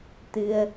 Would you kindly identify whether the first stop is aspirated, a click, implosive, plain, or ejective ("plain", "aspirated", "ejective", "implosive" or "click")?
plain